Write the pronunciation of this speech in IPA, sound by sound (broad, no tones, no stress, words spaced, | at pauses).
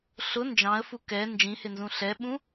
ɬʊ nd͡ʒɑ̃ə̯fu kɛ nd͡ʒĩhɪnzũ ɬɛɓũ